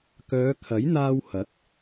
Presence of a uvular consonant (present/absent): absent